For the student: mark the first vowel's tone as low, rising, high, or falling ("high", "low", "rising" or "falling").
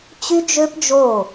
high